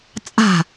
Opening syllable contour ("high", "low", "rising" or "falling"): falling